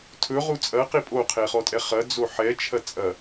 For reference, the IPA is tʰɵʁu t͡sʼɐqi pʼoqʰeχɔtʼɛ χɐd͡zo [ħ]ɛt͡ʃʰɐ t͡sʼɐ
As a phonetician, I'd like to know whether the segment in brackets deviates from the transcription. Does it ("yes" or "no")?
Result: no